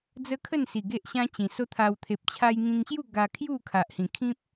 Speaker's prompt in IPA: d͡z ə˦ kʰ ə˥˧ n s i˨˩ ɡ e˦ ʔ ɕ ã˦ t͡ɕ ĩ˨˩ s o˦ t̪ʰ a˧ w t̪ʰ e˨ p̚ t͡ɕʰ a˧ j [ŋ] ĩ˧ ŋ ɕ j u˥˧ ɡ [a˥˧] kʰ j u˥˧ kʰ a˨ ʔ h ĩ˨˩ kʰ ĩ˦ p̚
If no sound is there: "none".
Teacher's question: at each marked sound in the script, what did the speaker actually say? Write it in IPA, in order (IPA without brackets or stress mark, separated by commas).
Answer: ŋ, a˧